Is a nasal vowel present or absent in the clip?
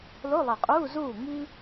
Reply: absent